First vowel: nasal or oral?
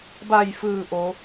oral